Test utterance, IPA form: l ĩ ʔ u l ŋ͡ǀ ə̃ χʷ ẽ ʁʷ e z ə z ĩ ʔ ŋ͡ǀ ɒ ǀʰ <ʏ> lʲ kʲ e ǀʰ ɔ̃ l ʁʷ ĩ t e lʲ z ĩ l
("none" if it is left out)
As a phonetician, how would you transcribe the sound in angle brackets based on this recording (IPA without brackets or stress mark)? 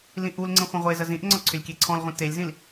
ʏ